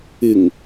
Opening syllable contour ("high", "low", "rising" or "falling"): low